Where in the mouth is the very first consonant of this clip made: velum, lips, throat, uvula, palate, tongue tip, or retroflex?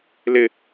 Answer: tongue tip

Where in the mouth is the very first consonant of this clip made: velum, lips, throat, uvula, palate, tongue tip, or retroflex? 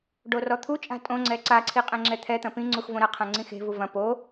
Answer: retroflex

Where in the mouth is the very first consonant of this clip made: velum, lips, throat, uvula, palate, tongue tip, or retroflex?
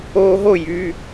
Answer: throat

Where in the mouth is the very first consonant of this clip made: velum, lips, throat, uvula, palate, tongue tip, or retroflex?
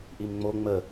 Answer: throat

